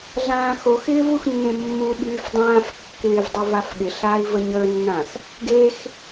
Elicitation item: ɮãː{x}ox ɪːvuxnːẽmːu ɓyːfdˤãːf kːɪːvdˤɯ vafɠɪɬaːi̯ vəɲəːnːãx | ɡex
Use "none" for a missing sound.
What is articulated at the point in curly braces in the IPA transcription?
x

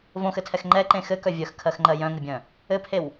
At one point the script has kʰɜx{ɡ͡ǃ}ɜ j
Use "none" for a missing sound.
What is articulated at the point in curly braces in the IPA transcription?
ŋ͡ǃ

